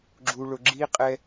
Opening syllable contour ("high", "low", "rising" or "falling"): low